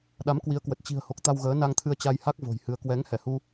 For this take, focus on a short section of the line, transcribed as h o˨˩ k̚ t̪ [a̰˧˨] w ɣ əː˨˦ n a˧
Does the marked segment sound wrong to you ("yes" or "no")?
yes